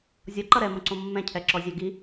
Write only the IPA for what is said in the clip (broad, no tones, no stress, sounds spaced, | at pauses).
zʲ ɔ ǃ ʌ ɾ ɛ m õ ǀ õ mː ɛ̃ cʰ ɛ ǁ ɔ zʲ æ ɡ i